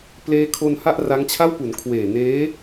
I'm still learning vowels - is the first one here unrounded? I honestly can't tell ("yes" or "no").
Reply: yes